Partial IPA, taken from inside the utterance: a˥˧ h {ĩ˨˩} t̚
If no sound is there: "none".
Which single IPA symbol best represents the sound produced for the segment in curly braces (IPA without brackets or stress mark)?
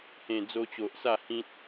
ĩ˦